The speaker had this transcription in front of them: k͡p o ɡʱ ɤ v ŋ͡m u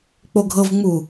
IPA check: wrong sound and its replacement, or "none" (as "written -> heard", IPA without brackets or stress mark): none